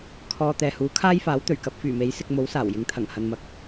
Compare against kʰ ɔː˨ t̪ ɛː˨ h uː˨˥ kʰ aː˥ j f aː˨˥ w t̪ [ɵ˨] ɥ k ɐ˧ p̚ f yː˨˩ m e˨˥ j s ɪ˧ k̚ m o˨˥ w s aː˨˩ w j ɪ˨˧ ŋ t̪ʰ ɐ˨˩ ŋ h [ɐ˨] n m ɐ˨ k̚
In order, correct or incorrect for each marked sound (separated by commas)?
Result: incorrect, correct